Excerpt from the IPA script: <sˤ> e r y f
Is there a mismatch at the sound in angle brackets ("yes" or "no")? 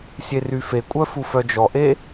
yes